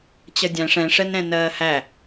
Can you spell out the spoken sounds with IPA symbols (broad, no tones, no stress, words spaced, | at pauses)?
t͡ɕʌdʲæ̃ʂ ɛ̃ʂɛnɾɛ̃ nɜːhæ